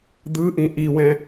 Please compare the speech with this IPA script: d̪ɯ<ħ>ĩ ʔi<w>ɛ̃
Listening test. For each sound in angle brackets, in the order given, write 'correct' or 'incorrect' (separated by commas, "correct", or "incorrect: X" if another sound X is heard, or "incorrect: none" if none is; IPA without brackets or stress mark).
incorrect: ʔ, correct